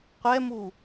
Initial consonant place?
uvular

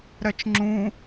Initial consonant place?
alveolar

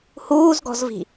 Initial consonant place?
glottal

